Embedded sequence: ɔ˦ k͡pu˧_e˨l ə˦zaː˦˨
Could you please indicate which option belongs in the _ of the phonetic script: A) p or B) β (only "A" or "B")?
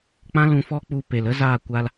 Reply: A